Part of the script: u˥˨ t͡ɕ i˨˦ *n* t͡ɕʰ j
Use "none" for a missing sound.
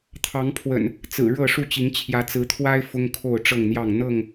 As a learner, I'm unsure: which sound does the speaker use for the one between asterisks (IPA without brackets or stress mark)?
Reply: ŋ